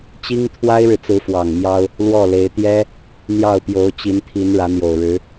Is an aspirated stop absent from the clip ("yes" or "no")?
no